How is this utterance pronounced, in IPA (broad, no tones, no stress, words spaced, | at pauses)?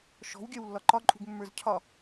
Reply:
ʃɔ̤wɡʲœwlːɒ ǃɒǃʼṳɡmːə˞z cʰɒ